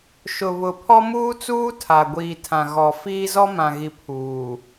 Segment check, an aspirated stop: present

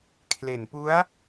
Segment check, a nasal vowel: absent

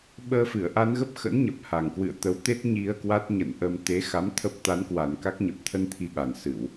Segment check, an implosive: present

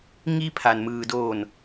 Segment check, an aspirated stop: present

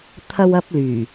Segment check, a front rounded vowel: present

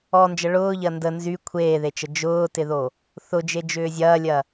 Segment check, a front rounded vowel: present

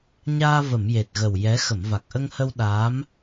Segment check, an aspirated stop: absent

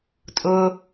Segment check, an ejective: present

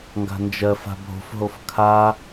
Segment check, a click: absent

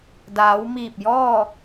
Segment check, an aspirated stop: absent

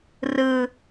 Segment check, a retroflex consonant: absent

